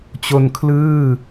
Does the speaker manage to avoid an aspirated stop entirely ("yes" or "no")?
no